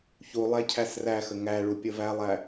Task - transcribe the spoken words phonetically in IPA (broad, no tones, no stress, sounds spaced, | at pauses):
ç u lˠ æ cʰ æ s r æ x ə ŋ æ ɭ u pʲ ə v æ lˠ æ